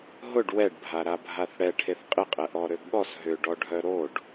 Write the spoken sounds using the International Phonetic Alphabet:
ɦʊɖ wɛɖbʱa ɾabʱaθɽɛ ʈʰeθqʼɪqʼɛ ʔɔɾøɡɠɔs ɦʏɖɔɖʱœ ɾoɖ

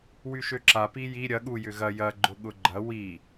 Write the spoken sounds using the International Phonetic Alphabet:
wyʃøǁa piji ɾʲɐ ɠu jʏɣɐ jɐ ɡ͡ǃʊɠʊɡ͡ǃɐ wi

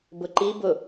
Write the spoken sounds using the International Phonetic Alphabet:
bʊǃi bʊ

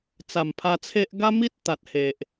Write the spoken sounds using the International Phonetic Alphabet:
t͡sa˨˩mpʰa˧t͡sʰe˦ʔ ɡa˦mi˦t̚ t̪a˨t̚he˨ʔ

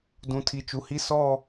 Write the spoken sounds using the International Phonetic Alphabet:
dũ˨tʰi˨ t͡ʃu˨hi˦ sɔ˦˨

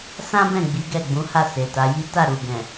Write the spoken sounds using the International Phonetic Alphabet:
sã˦bɛ̃˦˨ ɡ͡bi˨˦ɡɛ˦˨ɡ͡bũ˨˦ ha˦˨se˨ta˨˦ji˦ ta˦˨ ɾu˨ ɡɛ̃˨

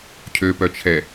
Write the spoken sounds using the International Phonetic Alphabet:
cʰøpœt͡ʃʰɛ

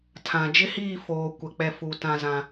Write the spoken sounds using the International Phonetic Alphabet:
tʰã˨d͡ʒɪ˦hiː˦˨ foː˨ kʷɛ˨ k͡pɛ˨ fu˨ tã˦zã˦

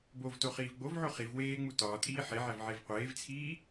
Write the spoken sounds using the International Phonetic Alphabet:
bovto χiːvɡ͡bovʕo χiv weːŋ͡mu tɒːtʼiː ħeʕæv ʕevqʷeːvt͡sʰiː

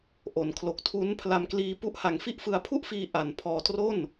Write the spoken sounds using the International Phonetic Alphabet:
ʔo˩˦nkʰlo˨˩k̚tʰu˦˥npʰla˧m kliː˧pu˦˥ʔ ha˨˩ŋ fi˥˩ʔfɯ˧a̯pʰu˥˩ʔfiː˧ ʔa˨˩npʰɔː˧tro˥˩n

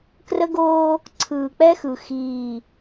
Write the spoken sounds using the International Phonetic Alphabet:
krə˦ɡoː˦ | ǀʰɯː˨k͡pɛ˦xɯ˨ xiː˦˨

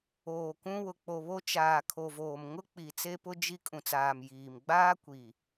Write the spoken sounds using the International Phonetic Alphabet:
oː˨kũ˦ wʊ˨k͡po˨βo˦ t͡ʃaː˨ kʰo˨voː˨mŋʊ˦k͡pi˨ t͡se˦pʊ˦ d͡ʒi˦ kʼũ˨t͡saː˨m jiː˨m ɡ͡baː˦kʷi˨

